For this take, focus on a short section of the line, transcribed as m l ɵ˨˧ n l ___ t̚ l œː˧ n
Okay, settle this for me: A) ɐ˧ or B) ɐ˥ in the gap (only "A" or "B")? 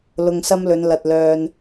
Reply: A